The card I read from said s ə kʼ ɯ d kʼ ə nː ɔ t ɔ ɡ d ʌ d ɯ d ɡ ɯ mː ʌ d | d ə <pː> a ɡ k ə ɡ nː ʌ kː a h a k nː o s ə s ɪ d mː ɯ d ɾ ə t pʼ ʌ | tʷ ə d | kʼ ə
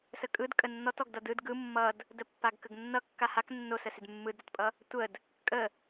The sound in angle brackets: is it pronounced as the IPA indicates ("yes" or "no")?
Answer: yes